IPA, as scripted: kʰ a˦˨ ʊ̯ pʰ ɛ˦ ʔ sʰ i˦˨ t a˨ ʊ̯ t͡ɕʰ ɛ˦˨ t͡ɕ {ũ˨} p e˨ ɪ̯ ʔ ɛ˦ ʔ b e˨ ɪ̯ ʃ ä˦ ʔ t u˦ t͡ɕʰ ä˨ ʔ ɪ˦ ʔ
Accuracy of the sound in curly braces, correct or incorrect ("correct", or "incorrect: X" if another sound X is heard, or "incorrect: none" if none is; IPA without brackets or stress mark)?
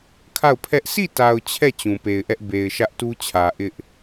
correct